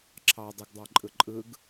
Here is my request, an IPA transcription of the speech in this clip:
ǁʰɑ dˤɯɡdˤɑ ǃʼɯǃʼɯɡ

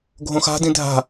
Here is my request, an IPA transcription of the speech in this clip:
ɡʱõxa̤ dĩdʱa̤

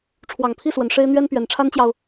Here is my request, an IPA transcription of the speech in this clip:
ʈ͡ʂʰwɑ˨˩ŋpʰi˥˩swə˨˩n ʂe˥ɪ̯ n̪ɥɛ˥npɥɛ˨˩nʈ͡ʂʰa˥nt͡ɕjɑ˨ʊ̯

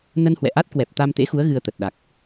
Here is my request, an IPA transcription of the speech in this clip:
nə˧nhwɛ̰˧˨ʔa˦˥t̚ kwɛ˨˩p̚t̪a˧mt̪ḛ˧˥xu˨˦ə̯ ɣɨ˧ə̯t̪ə˨˩t̚ ɗa˨˩k̚

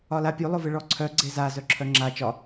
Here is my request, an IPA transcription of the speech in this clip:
ɒlapʲu lˠʊvɨɭɔǀʰœ ɡ͡ǀeza zœǁʰœŋ͡ǁa t͡ʃɒ

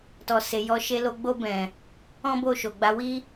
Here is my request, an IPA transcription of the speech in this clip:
tɔ˨se˨jɔ˨˦ ʃe˧lo˧ ɡ͡bo˧bɛ̃˨ | ɔ̃˦bo˦˨ʃo˨ɡ͡ba˨˦ wi˦

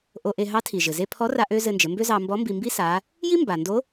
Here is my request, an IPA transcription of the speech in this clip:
ʔo˧ʔe˧ ɦɑ˧˥tʰi˩ ʒɘ˩ze˧pʰɔ˧˥ra˧ ʔø˥ zɘ˧nd͡ʒɘ˩˧mbø˥zɑ˧ mbɔ˧˥mbi˧mbi˥ sa˧˥ | ji˥ mba˩ndo˧˥

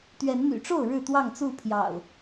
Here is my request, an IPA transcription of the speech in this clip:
t̪ɥɛ˨˦nn̪y̰˨˩ʈ͡ʂo˥˨ʊ̯ ɻɻ̩˥˨t̪wɑ˥˨ŋt͡su˥˨pʰjɑ̰˨˩ʊ̯

